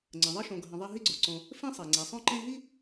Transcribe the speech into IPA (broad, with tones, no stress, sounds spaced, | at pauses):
ŋ͡ǀ ə̃˩ ðˤ ɪ˥ ʃ õ˨ ɡʱ ə̃˨ ðˤ e˦ ɦ i˥ ɡ͡ǀ o˩ ǀ õ˨ | f ẽ˥ sˤ e˩ ŋ͡ǀ e˩ sˤ õ˥ ǃ ẽ˦ ɦ i˥